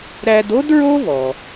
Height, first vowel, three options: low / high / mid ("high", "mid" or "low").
low